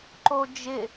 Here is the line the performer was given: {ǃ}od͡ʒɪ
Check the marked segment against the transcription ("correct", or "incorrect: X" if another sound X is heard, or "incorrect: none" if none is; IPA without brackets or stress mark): correct